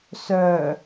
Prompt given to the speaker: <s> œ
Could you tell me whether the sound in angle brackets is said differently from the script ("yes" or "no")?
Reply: no